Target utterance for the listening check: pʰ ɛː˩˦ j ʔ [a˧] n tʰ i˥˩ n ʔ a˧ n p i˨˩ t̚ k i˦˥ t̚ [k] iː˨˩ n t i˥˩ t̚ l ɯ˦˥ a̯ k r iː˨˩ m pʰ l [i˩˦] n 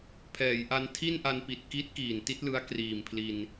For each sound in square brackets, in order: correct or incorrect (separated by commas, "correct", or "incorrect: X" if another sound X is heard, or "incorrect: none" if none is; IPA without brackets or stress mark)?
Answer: correct, correct, incorrect: i˧